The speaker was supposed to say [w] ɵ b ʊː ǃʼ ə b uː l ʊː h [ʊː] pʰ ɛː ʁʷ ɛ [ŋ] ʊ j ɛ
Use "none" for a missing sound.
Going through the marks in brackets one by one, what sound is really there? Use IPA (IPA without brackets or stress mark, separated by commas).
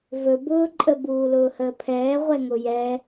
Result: v, əː, ŋ